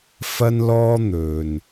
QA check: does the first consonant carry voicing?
no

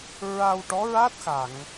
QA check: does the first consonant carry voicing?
yes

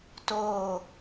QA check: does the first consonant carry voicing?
no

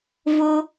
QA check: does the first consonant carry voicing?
yes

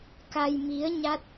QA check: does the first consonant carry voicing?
no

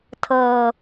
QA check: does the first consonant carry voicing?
no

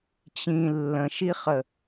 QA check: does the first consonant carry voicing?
no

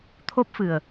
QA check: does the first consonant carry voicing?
no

